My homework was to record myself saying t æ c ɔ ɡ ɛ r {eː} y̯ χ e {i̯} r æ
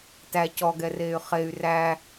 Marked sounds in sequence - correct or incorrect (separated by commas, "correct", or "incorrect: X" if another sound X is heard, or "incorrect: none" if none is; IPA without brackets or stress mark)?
correct, incorrect: y̯